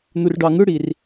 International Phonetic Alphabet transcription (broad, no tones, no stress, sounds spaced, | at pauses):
n̪ u r ɖ ɑ ŋ ɯ ɽ i r